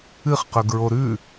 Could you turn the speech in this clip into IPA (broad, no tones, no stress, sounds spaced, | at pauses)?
ɨ χ q ɵ ɡ ɹ o ɾ ʉ